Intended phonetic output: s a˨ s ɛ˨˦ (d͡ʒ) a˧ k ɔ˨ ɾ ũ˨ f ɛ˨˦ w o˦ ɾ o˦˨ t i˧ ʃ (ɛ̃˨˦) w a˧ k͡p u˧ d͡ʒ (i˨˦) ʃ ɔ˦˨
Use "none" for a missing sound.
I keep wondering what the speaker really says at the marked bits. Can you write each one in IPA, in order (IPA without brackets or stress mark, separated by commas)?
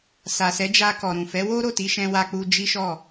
d͡ʒ, ɛ̃˧, i˦